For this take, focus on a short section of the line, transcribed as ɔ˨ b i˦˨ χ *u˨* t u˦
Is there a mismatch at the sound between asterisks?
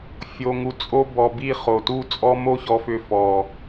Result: yes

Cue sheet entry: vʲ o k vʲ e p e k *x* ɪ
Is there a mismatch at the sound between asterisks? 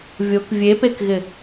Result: yes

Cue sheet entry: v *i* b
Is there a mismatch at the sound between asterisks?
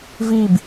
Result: no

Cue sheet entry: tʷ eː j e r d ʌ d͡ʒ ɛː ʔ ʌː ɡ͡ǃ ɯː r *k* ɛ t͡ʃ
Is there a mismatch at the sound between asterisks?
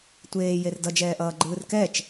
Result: no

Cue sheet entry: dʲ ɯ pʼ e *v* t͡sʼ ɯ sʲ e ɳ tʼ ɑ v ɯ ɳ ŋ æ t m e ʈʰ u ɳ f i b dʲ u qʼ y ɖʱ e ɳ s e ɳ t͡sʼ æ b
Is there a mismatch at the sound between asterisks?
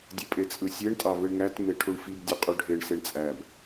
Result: yes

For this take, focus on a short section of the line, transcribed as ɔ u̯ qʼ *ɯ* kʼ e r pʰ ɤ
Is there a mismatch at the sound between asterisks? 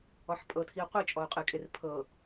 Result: no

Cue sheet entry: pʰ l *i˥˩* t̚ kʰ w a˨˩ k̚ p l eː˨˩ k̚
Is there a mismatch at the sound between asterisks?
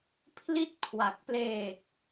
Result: no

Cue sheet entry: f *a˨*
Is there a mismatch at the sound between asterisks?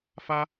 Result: yes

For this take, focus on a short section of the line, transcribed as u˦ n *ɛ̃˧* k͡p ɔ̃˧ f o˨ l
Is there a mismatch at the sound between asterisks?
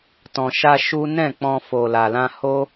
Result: yes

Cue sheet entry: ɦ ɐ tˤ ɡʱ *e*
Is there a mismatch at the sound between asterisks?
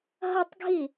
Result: yes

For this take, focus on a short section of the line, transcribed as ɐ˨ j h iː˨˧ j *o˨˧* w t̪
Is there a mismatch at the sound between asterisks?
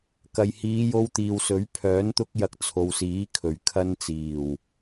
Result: yes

